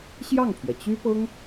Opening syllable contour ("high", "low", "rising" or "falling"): falling